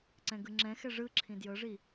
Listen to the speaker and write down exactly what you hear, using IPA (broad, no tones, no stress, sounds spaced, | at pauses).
ǀ ɛ̃ ɡ ɯ ŋ͡ǁ ɛ̃ x ɛ ʐ ɯ ǁʰ ĩ d j ɤ ʐ i